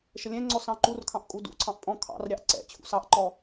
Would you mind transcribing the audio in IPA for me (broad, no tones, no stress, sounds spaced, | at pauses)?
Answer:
ʃ ə lʲ ɛ̃ ŋ͡ǀ ɔ s ɑ̃ ǃ u r kʰ ɑ̃ ʔ kʼ u d ṵ ǀʰ ɑ̃ ʔ pʼ ɔ̃ kʰ ɑ̰ r ɾʲ ɑ ʔ ǀ ɛ̰ t͡ɕʰ ṵ s ɑ ʔ ǃ ɔ